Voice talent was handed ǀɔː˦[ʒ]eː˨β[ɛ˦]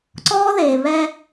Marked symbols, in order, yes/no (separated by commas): no, yes